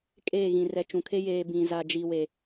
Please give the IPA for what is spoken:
kʼ eː˦˨ ɣ ĩ˨ r ɛ˨ t͡ʃ ũ˨ kʰ e˦ j eː˨ b ĩ˨ z a˨ d͡ʒ i˨ w e˨

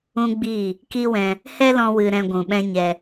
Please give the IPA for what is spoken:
ũ˦ ɡ͡b i˦˨ | k i˦ w ɛ̃˧ | h ɛ˦ l ɔ̃˧ w ɨ˧ ɾ ɛ̃˧ ɡʷ ũ˨ ɓ ɛ̃˦ ɲ ɛ˧

